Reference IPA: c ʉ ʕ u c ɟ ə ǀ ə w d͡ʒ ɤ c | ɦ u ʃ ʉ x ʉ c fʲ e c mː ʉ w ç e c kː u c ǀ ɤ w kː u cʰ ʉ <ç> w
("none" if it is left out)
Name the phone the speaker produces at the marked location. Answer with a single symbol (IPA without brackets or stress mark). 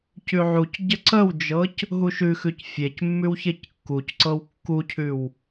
none